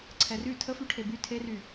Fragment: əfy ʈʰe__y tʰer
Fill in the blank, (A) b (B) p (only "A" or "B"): A